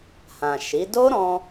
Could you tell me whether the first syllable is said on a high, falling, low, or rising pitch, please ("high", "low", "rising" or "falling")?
low